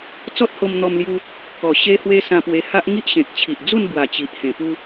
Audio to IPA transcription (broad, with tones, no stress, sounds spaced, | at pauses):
t͡s ɔ˦ t̚ h o˧ m n̪ ɔ˧ m l j u˧ | k ɔ˨˩ ɕ e˦ h w e˦ s ã˧ p w e˧ h a˦ ʔ ŋ i˦ ʔ ɕ ẽ˨ k̚ t͡ɕʰ i˨ ʔ d͡z u˥˧ n b w a˨˩ t͡ɕ i˨ ʔ h ẽ˨˩ p u˧